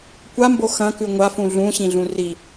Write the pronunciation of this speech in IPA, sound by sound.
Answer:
kʷ a m b o x ɐ̃ k ʉ ŋʷ a f ũ ɮ ũ ɕ ĩ ɮ ũ r i

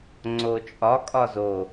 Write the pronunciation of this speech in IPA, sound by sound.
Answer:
ŋ͡ǀ o t͡ʃʼ ɒ kʼ ɒ z o

